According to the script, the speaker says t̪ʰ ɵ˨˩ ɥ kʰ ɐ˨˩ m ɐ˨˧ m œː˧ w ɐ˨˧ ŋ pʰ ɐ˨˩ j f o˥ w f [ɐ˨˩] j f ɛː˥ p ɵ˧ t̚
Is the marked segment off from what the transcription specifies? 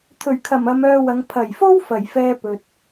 no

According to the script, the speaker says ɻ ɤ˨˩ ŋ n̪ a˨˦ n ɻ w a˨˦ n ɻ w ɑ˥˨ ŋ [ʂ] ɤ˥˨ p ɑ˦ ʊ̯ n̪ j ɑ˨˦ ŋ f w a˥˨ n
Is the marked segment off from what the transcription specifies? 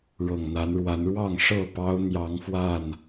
no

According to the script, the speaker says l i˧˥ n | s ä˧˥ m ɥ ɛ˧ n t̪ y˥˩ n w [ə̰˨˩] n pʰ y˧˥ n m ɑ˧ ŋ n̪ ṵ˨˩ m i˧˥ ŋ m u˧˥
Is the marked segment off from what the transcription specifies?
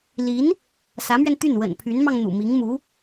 no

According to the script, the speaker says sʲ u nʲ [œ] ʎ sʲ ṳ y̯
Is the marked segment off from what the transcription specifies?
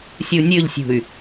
yes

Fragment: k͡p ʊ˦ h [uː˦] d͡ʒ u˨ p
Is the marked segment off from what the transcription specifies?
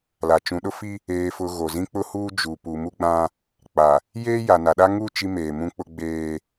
no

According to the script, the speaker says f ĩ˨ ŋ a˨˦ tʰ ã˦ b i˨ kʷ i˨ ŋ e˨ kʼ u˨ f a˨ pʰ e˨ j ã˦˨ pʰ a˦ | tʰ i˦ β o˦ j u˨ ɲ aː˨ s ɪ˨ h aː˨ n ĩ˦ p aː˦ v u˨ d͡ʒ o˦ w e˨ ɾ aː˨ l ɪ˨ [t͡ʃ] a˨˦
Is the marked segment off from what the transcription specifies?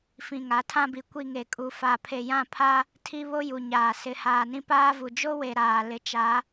no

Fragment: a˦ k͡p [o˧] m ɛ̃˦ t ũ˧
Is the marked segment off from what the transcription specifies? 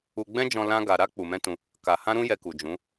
yes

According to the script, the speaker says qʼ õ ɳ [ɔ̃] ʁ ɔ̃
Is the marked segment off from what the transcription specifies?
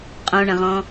yes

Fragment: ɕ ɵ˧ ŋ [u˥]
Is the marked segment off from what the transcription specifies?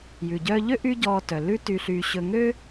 yes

